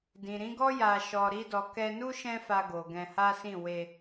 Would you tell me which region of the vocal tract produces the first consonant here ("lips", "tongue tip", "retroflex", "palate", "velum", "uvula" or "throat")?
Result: tongue tip